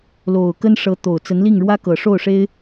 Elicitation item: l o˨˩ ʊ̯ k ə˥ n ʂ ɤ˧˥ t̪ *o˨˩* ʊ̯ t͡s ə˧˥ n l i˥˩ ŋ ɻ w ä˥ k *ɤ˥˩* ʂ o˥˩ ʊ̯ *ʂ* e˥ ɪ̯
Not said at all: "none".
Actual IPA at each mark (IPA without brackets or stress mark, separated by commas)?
o˨˩, ɤ˨˩, ʂ